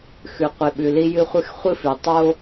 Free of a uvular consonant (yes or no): no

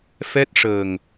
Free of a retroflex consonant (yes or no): no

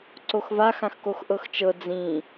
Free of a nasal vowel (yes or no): no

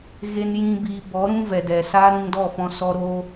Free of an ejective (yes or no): yes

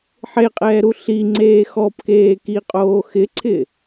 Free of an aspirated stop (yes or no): no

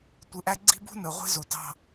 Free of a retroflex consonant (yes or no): yes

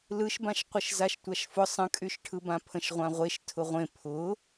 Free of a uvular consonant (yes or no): no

